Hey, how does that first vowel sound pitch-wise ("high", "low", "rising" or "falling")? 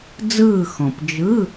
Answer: falling